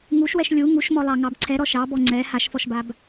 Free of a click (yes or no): no